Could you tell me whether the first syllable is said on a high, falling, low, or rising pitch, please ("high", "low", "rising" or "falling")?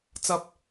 low